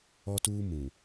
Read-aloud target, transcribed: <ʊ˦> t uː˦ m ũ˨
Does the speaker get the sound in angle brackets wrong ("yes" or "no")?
yes